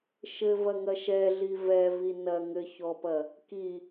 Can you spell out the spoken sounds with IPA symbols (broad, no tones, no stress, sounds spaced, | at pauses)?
ʃ ɘ v ɐ ŋ ɐ ʃ ɛ ɮ i v ɛ v i n ɐ ŋ ɘ ç ɔ p ɐ | k i